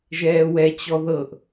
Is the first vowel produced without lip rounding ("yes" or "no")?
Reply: yes